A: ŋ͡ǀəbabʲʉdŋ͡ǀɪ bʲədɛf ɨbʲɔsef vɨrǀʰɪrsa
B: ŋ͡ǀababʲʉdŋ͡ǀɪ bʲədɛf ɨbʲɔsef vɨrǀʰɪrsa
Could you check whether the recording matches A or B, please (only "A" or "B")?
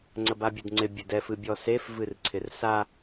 A